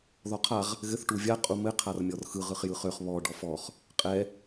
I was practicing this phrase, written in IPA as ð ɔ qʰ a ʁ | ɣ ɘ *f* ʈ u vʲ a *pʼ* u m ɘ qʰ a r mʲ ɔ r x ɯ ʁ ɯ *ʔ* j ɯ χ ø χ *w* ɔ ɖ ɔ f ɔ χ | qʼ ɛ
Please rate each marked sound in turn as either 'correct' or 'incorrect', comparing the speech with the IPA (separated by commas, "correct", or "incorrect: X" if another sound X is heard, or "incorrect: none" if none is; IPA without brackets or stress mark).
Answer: incorrect: θ, incorrect: qʼ, incorrect: χ, incorrect: β